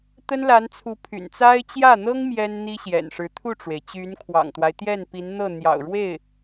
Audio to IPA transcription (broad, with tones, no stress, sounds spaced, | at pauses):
t̪ ə˥ n l a˧˥ n t͡sʰ u˧˥ pʰ y̰˨˩ n t͡s a˥ ɪ̯ t͡ɕ j ä˥˩ n̪ ɤ˥ ŋ m j ɛ˥ n n̪ i˥ ɕ j ɛ̰˨˩ n ʂ ɻ̩˧˥ t̪ʰ u˥˩ ʈ͡ʂ w e˩ ɪ̯ t͡ɕ y˧˥ n kʰ w ɑ̰˨˩ ŋ t̪ w a˦ ɪ̯ t̪ j ɛ˥˩ n p i˧˥ n n̪ ɤ˥˩ n̪ j ɑ̰˨˩ ʊ̯ ɻ w e˥˩ ɪ̯